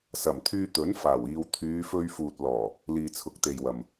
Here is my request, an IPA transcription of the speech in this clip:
sɐ˨˩mt̪ʰyː˧t̪ɵ˨˥n faː˨˩wiː˨w t̪ʰyː˨˧fɵ˧ɥfuː˨t̚ lɔː˨˩ | liː˨t͡sʰʊ˨˥k̚t̪e˨jwɐ˨m

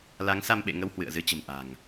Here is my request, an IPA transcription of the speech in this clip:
la˨˦ŋsa˧mɓḛ˧˨ŋə˧w hwɨ̰˧˨ə̯zɨ˨˦t͡ɕə̤˨˩m ʔa̤˨˩ŋ

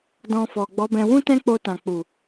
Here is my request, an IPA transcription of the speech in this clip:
dɔ̃˧fɔ˨ ɡ͡bɔ˨˦bɛ̃˧ wũ˦tɛ̃˦k͡po˧tã˨ k͡pu˨

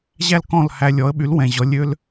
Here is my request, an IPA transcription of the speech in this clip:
ʑæ˥lkɔ̃˥˩lhæ˧ lʲɔ˩˥ə̯ɓy˩˥l wɛ̃˩ʑɔ˩˥ lʲø˧l

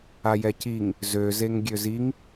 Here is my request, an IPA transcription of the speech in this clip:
ajɛciŋ | zø zeŋɡʲøziŋ

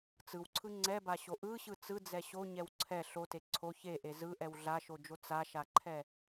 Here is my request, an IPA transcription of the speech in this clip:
t͡sɯwǀʰɯ ŋ͡ǀɛbaɕo ʔɯɕɯ t͡sɯd͡zɛ ɕoɲɛw ǀʰɛ ɬote ǀʰo çeʔe zɯʔɛw ɮaʃod͡ʒo t͡saʃaǃʰɛ

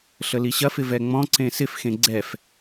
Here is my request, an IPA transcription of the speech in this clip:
ɬəliɕɐfɪ vɛŋ͡mɔ̃ǀẽ sɪfxẽ ɡ͡ǀɛf

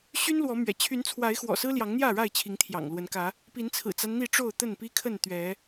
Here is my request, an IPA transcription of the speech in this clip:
ɕy˦nlwɔ˨˦mɥɛ̰˨˩ t͡ɕʰy˨˦nt͡sʰwa˨˦ɪ̯xwɔ̰˨˩ sɹ̩˦ljɑ˨˦ŋn̪jä˥˨ɻa˥˨ɪ̯ t͡ɕʰi˨˦ŋt̪ʰjɑ̰˨˩ŋlwə˨˦nkä˨˦ | pi˨˦nt͡sʰɹ̩˨˩t͡sa˦n n̪i˥˨ʈ͡ʂo˥˨ʊ̯t̪ə˥˨n pi˦kʰə˥˨n t̪ɥɛ˨˦

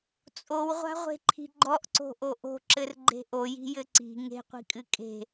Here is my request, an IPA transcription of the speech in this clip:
t͡sʼowʁʷa̤ʁʷe̤ǃʰi̤ ɡ͡ǃɔʔǀo̤ʔo ʔo̤ǁɘrɡ͡ǃe̤ ʔoji̤jɘ ǀi̤ ŋe̤qʷi̤kʼɨ kʼe̤

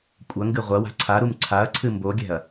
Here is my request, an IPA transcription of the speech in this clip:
kʷʼɐ ŋɡɨʁʷɐwa̤ ǀʰaɾum ǀʰaɐ̯ǀʰɨ mboɡʲɛ̤ɐ̯

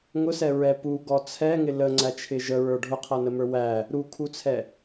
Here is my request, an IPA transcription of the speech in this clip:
ŋʊsɛɹɛ puɡɔ t͡sʰɛŋɪ ləŋ͡ǀæt͡ʃʰɪ ʒəɹə˞ ɖʱʊqʰʌnəmə˞ wæ | ɾukʰut͡sʰɛ

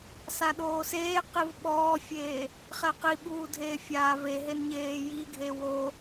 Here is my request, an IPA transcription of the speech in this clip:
saɗoːseːqiv ɓɔːfʲeː | χɛqiɓuː dʱeːfʲaːveɦen ɲeːjiɡʱe wo

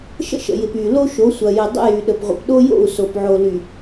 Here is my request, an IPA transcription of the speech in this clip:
ʃə̰˦ʃə̰˨jɪ˨p y˨ lo˦ʃo˨˦sʷɐ˨ jɪ˨dˤə̰˦jy˨ ɗə˨pʁʷə̰˨pɗo˦jo̰˦˨u̯ so˨pʕo˨ly˨

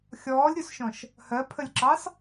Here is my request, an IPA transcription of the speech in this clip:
xʲɔːlʲɾʲusʃɔ̃ʃ | hɜpʰəlʲǁɑs

